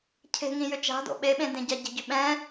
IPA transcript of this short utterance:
cʰ e̤ ŋ ĩ j ʏ t͡ʃ a̤ d o̰ ɓ e ɓ ẽ d ẽ ɟ a ɟ e̤ ɟ ʏ ɓ ɛ̃

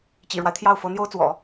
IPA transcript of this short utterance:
t͡ɕ ḭ˨˩ ɻ w a˦ ɪ̯ t̪ʰ j ɑ˥˩ ʊ̯ f ɤ˧˥ n̪ j o˥ ʊ̯ t͡s w ɔ̰˨˩˦

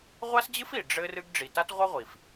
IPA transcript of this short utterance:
ʁʷ a˥ s d͡ʑ ɨ˥ f i˩ ɖ͡ʐ ɘ˦ r ɨ˦ ɡ ɖ͡ʐ i˨ t a˥ t ʁʷ ɐ˥ ʁʷ i˩ f

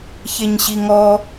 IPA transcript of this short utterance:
ç e ɲ ɕ i ŋ ɔ

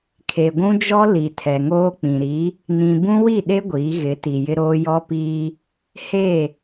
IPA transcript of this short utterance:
kʰ e˨ ɡʷ ũ˦ d͡ʒ ɔ˦ l i˨ tʰ ɛ˨ ŋ oː˦ k͡p ĩ˨ ɾ i˨˦ | n ĩ˨ b ũ˦ w i˦˨ ɗ e˦ ɡʷ iː˨˦ ɣ ɪ˨˦ t i˨ j ɪ˦ ɾ oː˦ j ɔ˦ p iː˦ | h e˦˨

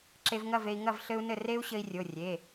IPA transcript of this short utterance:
ǁ e˧ v ŋ ɐ˥˨ v e˧ i̯ ŋ ɐ˥˨ v ɬ ɘ˦˥ u̯ n ɘ˥˨ r e˦˥ u̯ ɕ ɘ˧ i̯ rʲ o˩˧˩ rʲ e˩˧˩

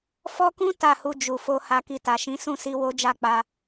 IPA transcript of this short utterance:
f ɔ˦ k ũ˦ t a˦˨ h u˧ d͡ʒ u˨ f o˧ h a˧ k i˧ t a˨ ʃ ĩ˨˦ s ũ˦˨ s i˧ w o˦ d͡ʒ a˦˨ k͡p a˧

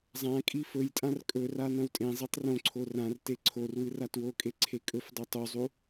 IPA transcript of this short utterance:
zˤ ã kʼ i f ɵ j tʼ ã r kʼ ɵ r a n ɐ̃ w tʼ ẽ zˤ i tˤ r õ ǀʰ o r ã r t e ǀʰ o r w ɨ r a t w o kʼ e ǀʰ e kʼ ɵ f dˤ o tˤ u zˤ u

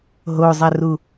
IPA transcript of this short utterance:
ɦ o zˤ æ r u

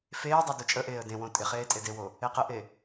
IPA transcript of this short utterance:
f eː dˤ œ d o t͡ʃʼ ə ʔ eː ə̯ d ẽ w õ tʼ ɪ χ eː tʼ e d e w o | e q ə ʔ e

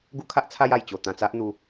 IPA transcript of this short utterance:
ɡ u˦ kʰ a˦ ʔ t͡sʰ a˧ j a˨˩ j t͡ɕ o˨˩ t̪ ã˨˩ t͡s a˦ ʔ n̪ u˧

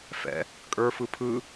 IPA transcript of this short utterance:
f ɛ̰ | kʼ ə˞ f ɯ pʰ ɯ

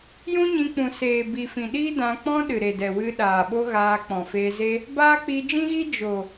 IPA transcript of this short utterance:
j ũ˦ ɲ ĩ˧ k͡p ũ˨ s eː˨ b i˨ f ĩ˨ ɗ iː˦ d ã˧ k͡p ɔ̃˦ ɗ ɨ˨ ɾ e˨ d ɛ˨ w ɨ˧ ɗ aː˨ ɓ o˦ ɣ aː˧ k͡p ɔ̃˨ f eː˧ z e˦ | b aː˦ k͡p i˧ d͡ʒ ĩ˦ ɣ i˦ d͡ʒ o˨

